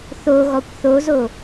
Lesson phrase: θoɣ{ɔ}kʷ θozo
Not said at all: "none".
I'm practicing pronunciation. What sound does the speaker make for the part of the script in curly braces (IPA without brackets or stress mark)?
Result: ɔ